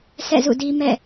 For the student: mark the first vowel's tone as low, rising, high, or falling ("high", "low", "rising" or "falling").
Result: falling